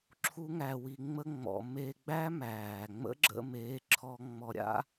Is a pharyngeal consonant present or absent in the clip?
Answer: absent